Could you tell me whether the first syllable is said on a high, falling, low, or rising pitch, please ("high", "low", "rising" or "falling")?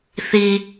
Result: high